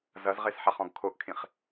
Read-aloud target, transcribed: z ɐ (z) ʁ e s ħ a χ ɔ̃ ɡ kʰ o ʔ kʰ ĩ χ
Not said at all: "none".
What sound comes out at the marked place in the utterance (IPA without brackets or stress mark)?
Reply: z